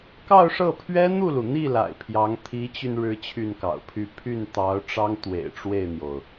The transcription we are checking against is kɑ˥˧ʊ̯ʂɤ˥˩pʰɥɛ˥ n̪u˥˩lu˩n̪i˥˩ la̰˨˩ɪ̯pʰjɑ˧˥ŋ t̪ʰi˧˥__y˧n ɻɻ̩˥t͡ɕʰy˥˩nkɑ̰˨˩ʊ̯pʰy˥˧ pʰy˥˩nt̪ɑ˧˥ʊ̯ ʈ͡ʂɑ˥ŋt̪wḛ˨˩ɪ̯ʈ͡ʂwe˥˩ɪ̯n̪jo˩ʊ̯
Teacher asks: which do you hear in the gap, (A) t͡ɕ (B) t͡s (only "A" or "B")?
A